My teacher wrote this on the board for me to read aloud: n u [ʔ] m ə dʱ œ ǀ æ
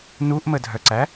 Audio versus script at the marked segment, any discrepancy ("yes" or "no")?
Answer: no